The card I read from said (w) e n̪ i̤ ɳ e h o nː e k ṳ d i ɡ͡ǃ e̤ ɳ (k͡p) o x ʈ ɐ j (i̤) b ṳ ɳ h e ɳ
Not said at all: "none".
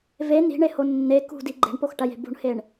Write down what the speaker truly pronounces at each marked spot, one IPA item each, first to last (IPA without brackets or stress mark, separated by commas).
v, p, e̤